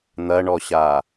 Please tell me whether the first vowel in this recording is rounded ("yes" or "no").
no